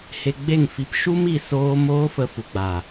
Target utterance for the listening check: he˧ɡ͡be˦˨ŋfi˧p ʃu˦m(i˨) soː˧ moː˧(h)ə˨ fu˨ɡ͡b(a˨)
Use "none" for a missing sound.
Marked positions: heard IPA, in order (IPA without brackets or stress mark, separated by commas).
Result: i˨, f, a˨